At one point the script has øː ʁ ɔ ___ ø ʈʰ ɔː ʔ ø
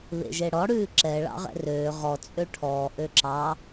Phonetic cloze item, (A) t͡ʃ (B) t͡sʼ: B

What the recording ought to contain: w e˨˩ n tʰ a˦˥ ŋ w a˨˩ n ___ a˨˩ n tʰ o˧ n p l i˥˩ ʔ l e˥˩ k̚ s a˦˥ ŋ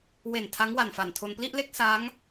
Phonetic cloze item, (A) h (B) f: B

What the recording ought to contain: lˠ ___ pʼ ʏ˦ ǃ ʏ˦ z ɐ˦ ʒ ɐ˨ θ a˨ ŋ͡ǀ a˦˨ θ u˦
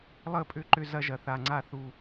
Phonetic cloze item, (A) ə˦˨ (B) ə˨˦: A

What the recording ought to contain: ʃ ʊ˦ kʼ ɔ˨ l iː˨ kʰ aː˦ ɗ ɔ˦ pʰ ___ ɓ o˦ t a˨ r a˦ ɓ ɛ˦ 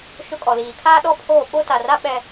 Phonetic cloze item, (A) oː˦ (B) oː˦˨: B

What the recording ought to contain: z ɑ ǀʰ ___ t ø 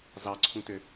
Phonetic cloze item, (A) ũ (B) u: A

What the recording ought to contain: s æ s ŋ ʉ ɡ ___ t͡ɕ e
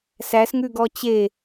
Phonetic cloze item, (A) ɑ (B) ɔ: B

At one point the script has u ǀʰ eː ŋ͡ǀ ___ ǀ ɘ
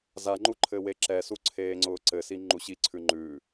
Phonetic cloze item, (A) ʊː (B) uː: A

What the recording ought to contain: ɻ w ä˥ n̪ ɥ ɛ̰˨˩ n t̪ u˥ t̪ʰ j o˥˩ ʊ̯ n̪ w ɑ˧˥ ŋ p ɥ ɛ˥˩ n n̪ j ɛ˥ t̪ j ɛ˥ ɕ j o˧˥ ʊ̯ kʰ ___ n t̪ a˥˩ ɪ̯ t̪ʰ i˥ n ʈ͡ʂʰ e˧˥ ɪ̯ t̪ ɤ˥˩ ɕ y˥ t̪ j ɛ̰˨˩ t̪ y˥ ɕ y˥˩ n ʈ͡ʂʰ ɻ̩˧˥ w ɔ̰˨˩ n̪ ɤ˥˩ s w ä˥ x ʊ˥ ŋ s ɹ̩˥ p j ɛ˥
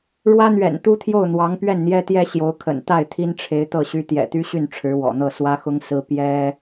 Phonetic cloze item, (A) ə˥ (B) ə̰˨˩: B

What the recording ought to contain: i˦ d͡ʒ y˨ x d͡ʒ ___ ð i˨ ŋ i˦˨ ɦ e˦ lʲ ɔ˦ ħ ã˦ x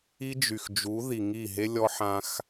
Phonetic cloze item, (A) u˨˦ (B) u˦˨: A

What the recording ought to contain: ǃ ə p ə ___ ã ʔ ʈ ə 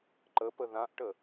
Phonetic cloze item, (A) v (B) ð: B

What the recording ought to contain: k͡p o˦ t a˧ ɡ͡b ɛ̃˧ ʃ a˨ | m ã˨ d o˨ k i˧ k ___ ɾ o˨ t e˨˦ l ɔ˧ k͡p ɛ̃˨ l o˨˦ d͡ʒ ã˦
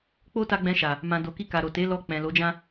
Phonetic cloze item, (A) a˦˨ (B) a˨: B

